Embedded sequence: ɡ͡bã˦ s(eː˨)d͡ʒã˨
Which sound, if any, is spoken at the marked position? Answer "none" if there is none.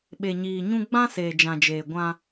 eː˨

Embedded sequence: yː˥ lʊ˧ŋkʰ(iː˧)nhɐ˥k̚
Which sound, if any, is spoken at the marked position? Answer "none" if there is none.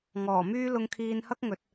iː˧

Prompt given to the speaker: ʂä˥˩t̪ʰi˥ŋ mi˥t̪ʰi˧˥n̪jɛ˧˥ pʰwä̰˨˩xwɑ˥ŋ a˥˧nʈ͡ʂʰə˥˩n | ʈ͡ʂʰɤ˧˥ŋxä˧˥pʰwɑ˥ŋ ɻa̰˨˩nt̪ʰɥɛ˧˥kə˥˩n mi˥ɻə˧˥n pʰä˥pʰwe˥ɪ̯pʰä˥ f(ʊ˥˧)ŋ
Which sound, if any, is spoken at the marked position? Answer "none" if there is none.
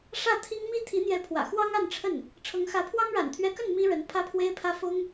ʊ˥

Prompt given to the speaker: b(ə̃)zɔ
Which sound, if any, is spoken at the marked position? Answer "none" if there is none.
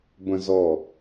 ə̃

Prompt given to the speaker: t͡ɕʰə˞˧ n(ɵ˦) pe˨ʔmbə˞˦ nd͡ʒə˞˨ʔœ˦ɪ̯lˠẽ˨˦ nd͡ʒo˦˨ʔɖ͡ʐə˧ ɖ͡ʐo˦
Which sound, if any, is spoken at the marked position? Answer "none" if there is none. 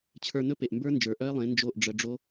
ɵ˦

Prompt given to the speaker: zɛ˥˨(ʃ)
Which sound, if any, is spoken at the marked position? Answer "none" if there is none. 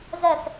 s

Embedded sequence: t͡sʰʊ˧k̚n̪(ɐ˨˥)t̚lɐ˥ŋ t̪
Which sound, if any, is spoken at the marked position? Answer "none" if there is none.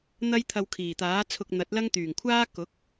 ɐ˨˥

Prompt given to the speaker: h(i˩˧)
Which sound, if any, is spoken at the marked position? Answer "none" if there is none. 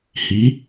i˩˧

